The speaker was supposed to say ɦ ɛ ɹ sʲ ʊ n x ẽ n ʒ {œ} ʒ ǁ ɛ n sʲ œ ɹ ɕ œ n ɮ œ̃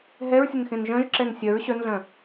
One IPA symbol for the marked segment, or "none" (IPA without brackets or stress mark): œ̃